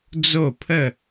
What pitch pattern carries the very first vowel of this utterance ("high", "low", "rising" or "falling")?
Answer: falling